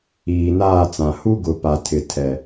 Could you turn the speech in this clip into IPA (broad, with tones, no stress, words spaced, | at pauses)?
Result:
iː˨naː˦˨t͡sã˨ hu˦ɡʊ˨ pa˨ tʰɪ˨tʰɛ˨